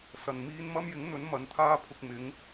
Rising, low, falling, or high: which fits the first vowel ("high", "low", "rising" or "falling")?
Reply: low